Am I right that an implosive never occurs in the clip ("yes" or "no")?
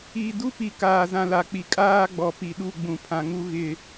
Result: no